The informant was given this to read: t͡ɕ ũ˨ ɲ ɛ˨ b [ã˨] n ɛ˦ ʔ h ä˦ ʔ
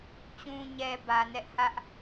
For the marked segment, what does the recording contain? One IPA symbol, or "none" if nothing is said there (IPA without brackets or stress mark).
ä˨